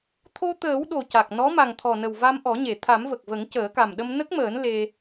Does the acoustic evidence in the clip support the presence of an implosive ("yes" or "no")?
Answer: yes